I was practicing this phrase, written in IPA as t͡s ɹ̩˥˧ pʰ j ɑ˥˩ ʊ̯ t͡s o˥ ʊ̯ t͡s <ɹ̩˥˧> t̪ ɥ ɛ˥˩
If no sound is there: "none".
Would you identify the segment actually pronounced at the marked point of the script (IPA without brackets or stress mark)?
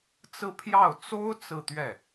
ɹ̩˥˧